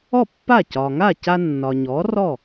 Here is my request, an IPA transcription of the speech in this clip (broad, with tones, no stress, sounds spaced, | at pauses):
ɔ˥˩ pː a˥˩ c ɒ˩ ŋ a˥˩ c a˧ nː ɒ˩ ɲ ɔ˩˥ r ɔ˥˩